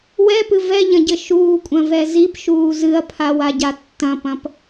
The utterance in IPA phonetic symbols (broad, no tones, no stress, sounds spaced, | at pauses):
w ɛ p ɨ v ɛ ʎ ɐ̃ ɟ ɘ ʃ uː kʷʼ ɐ̃ v ɛ z i p ʃ uː z ɨ ɐ̯ pʰ a w a ɟ a tː ɐ̃ p ɐ̃ p